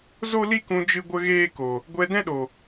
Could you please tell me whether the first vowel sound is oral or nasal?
oral